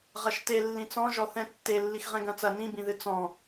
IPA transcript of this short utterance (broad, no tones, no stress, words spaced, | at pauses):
ʁɐʃte lːĩt͡sɔ̃ʒɔ θɛ̃tːe lːixʁɛ̃ɡɐ̃t͡sɐ nĩbĩðɨ t͡sɔ̃